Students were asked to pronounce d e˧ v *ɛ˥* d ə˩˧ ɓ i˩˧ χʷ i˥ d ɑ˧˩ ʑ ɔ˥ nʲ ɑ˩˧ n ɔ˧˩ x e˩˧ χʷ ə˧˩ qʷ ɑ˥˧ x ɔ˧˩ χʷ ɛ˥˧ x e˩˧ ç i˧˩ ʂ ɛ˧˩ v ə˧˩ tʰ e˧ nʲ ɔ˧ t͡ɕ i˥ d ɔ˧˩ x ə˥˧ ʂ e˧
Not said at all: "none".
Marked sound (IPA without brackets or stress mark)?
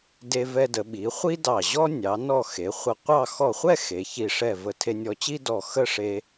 ɛ˧